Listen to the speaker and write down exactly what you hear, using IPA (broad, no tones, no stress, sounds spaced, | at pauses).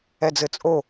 ɛ d͡z ɘ t͡sʼ o